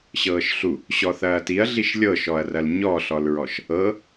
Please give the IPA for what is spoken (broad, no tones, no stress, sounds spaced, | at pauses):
ɕ ɤː ʃ ɬ u | ɕ ɔ θ ɐː t i ɐ̯ ɮ i ʃ lʲ ɤ ʃ ɔ ɐ̯ r ɐ l ɲ ɔ ɬ ɔ l ɹ ɔ ʃ | ɤ